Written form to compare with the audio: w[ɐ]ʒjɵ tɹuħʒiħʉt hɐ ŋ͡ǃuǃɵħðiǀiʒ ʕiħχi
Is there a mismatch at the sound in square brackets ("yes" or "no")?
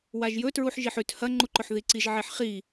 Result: yes